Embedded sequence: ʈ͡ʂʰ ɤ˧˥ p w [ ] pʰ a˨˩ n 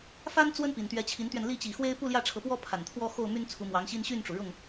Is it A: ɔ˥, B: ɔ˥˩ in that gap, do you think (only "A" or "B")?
A